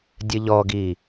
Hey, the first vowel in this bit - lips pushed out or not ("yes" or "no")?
no